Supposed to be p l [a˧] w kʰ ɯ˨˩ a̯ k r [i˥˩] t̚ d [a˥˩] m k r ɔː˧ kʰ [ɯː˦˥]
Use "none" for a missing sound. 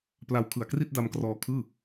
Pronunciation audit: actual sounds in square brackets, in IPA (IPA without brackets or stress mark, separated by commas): a˧, i˥˩, a˧, ɯː˥˩